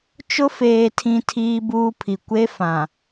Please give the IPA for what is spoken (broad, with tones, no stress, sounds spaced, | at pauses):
t͡ʃ ʊ˦ f eː˨ tʰ ĩ˨ tʰ iː˦ b uː˦ pʰ i˨ kʷ e˦ f ã˨